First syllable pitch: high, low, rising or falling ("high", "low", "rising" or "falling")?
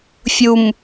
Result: low